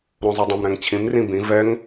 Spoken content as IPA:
ɾõzˤydˤõm ɾɛ̃ŋt͡ɕʰĩm rĩbĩ vɛŋ

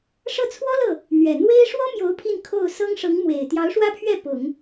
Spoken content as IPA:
ʂɤ˥˩t͡sʰwɔ˥lɤ˥˩ | n̪ɥɛ˨˩ n̪we˥ɪ̯ ʂwɔ˥mjo˧˥ʊ̯ pʰi˥˧nkʰo˥˩ʊ̯ sɤ˥ŋʂɤ˧˥ŋ mwe˨˩ɪ̯ t̪jɑ˧˥ʊ̯ʂwä˥pʰɥɛ˥˩ pʊ˨˩˦ŋ

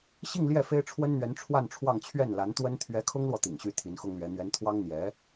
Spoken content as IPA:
ɕi˥˧ŋ ljɛ˥˩fe˥ɪ̯ʈ͡ʂʰwə˥nn̪ɥɛ˧˥n ʈ͡ʂʰwa˥˧nʈ͡ʂʰwɑ˥˧ŋ t͡ɕʰɥɛ˥˩nla˧˥nt̪wə˥n t̪ʰɥɛ˧˥kʰʊ˥ŋlwɔ˨ t̪ḭ˨˩ŋɕy˧˥ t̪ʰi˧˥nxʊ˥ŋlɥɛ˧˥ n̪ɥɛ˧˥nt̪ʰwɑ˥ŋ n̪jɛ˧˥

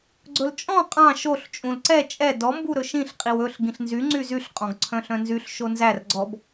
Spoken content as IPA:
ɡ͡ǀɵlt͡ʃʼɔ̃ qʼɑ̃ ʃoɬ t͡ʃʼũlǀɛ t͡ʃʼɛ dɔ mbuɾɵʃĩɬ qʼiwɵɬ ɡĩɬnzy ŋ͡ǀyzyɬ qʼɔ̃ɡǀʰœ̃ɬœ̃nzyɬ ʃonzær ɡ͡ǀɔb

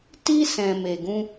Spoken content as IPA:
ti˦ sɛ̃˧me˧ɡũ˦

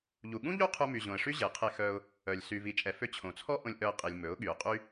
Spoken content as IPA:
ʎu˨ɠũ˦ʎu˦ qʰu˧my˨ʑõ˨ə̯ʂy˦ ʑe˨qʰe˧xœ˧ʊ̯ | œ˨lʲ sy˨vi˨t͡ʃʼɛ˨fø˧ t͡ɕʰõ˨t͡sʰɔ˦ ʔõ˧lʲʔœ˧ə̯qʼi˨lʲ mɵ˨˦ʊ̯ ɠy˨ʊ̯qʼy˦

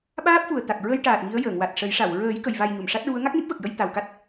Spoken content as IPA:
ɓaː˦˥p̚fu˨˩ə̯t̪a˨˩k̚ ɹə˧jʈaː˨˩t̚ ŋi˧˥ə̯ jəː˨˩˨ŋwa˨˩t̚ʂə˨˩˦jʂa˨˩˨w ɹəː˨˩˦j kə˨˩˨jva˨˩j ɲu˨˩˨mʂa˦˥t̚ɹu˧˥ə̯ ŋa˦˥k̚ni˦˥p̚və˨˩k̚jə˧j t̪a˨˩wka˦˥t̚

